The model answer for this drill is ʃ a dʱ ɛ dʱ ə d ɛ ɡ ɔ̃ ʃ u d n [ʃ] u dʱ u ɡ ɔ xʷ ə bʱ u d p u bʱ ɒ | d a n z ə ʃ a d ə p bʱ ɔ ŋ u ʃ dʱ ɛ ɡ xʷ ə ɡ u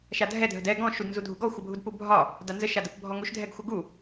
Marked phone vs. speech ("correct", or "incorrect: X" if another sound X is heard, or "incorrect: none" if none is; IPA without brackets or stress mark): incorrect: z